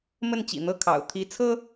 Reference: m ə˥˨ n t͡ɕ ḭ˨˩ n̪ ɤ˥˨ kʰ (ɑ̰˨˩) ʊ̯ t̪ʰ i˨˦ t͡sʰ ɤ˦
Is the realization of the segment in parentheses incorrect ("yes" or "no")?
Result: no